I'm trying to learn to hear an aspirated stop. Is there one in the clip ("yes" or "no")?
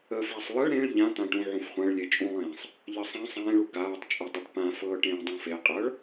no